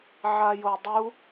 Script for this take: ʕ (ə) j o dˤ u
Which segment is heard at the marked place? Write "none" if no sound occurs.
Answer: a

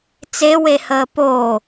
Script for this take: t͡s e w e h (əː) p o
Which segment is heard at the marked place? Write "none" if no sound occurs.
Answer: əː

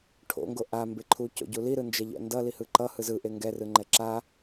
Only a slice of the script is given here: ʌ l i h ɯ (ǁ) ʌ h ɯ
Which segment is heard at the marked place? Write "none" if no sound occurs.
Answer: ǃ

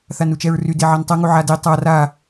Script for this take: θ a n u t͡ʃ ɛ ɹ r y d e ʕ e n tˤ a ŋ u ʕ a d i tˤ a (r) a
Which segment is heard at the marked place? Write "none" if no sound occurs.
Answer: r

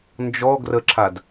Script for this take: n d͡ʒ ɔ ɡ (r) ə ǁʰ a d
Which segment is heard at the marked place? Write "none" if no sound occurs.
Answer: r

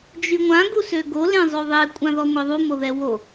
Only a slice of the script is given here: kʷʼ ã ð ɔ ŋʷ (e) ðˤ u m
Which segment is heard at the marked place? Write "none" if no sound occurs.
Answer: e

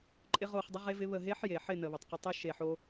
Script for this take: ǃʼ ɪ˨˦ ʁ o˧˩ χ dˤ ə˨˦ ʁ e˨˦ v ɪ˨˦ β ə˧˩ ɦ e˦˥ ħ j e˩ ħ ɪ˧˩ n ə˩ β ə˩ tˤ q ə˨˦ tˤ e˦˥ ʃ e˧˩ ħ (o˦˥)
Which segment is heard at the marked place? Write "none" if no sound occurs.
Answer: o˦˥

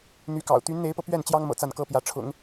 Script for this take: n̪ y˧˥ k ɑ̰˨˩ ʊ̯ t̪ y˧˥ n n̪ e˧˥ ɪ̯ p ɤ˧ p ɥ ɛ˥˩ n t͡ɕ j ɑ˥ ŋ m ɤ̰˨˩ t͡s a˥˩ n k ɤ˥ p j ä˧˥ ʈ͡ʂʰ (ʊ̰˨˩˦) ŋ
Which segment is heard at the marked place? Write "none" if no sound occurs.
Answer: ʊ̰˨˩˦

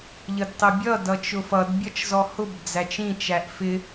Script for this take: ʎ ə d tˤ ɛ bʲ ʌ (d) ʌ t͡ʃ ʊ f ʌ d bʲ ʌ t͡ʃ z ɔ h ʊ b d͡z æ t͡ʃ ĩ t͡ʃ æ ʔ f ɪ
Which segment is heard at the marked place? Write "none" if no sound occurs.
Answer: d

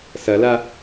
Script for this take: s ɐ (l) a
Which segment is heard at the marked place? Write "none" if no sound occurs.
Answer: l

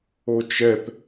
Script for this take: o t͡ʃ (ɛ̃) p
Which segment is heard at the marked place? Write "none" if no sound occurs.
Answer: ɛ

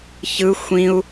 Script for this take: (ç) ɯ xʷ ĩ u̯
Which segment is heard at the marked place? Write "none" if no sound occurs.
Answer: ç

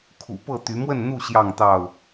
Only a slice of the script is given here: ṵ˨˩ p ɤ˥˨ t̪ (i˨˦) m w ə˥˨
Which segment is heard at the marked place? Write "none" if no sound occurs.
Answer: y˨˦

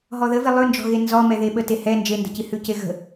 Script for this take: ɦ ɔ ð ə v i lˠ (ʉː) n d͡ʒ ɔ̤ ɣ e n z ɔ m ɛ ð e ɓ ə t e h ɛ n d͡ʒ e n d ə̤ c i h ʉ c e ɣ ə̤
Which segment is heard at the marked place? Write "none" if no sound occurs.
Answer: ʉ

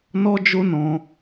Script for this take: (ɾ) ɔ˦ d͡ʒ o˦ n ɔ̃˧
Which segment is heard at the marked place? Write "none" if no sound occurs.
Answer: n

